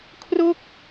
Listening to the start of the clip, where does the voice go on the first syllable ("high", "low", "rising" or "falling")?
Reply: falling